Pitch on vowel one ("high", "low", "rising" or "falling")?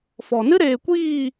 low